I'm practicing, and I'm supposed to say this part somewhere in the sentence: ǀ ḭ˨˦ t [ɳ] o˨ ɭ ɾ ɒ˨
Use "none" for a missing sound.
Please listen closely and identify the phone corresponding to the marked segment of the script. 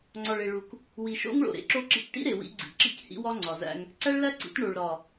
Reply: ɳ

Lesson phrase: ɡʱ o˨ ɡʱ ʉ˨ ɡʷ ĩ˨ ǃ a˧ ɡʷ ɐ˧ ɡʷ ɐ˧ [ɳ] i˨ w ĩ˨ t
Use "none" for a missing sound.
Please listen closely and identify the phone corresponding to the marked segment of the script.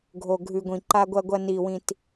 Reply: n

